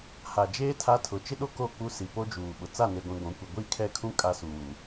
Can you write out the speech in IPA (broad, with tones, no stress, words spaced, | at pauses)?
ha˨d͡ʒeː˦ tʰa˦ tʰʊ˨˦t͡ʃɪ˦ɗo˦ ko˦˨k͡pu˦si˨ po˦d͡ʒuː˨ɓʊ˨ t͡sa˦˨ne˨ɡʷĩ˨ ɡʷũ˨˦kʷi˨ ɡʷi˦˨kʰɛ˦˨kʰũ˦ kʼa˦suː˨